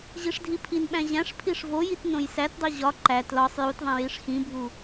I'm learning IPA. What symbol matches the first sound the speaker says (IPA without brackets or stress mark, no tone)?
ʑ